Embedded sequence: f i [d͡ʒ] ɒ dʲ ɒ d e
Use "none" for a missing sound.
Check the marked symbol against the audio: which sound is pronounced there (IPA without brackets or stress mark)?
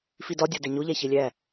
d